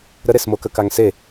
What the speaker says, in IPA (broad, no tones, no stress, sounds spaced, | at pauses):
ɾ ə ɾ e s m o k ə k a ŋ s e